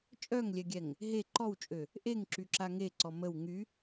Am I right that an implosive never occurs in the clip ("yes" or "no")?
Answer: yes